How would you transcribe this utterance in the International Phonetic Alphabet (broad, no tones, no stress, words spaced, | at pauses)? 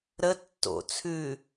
ɾə tːo̰ t͡sʰʉ